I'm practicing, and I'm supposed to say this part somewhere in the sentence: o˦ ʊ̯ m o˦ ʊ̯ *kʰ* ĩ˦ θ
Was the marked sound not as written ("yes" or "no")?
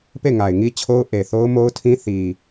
yes